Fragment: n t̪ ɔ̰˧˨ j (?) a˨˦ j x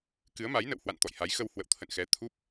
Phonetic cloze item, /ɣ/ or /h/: h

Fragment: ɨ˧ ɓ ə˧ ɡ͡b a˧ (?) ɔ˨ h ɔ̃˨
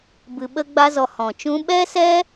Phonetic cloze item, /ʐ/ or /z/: z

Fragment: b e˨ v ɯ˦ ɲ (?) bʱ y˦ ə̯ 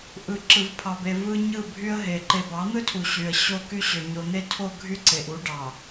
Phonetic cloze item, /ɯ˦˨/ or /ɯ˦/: ɯ˦˨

